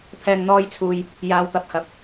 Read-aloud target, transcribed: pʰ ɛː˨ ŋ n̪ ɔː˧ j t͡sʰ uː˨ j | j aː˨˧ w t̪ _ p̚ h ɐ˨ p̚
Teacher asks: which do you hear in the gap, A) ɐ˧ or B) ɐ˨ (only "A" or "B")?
B